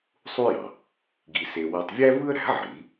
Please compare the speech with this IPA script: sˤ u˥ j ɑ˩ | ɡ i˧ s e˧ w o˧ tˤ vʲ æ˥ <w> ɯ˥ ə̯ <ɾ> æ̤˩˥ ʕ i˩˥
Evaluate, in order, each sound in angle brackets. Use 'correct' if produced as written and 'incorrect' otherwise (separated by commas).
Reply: incorrect, correct